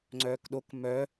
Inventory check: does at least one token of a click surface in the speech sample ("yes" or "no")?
yes